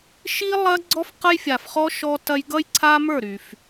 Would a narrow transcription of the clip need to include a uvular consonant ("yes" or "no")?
yes